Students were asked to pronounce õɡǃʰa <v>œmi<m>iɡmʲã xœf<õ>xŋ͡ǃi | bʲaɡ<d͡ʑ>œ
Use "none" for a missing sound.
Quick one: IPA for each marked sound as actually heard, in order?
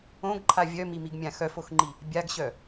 vʲ, m, o, ɕ

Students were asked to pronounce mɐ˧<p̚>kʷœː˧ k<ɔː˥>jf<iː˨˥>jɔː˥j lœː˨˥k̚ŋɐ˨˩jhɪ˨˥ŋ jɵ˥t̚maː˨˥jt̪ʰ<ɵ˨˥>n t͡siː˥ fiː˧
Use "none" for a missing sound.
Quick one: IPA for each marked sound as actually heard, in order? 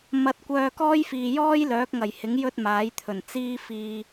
t̚, ɔː˥, iː˨, ɵ˨˩

